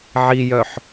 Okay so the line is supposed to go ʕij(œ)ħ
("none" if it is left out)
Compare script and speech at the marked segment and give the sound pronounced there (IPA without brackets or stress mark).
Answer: œ